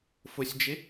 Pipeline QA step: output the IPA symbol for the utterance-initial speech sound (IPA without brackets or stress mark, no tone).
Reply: f